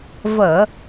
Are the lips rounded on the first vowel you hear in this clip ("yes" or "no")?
no